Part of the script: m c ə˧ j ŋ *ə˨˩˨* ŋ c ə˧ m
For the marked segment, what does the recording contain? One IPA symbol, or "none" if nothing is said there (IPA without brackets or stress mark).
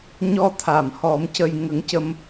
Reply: ə˧˥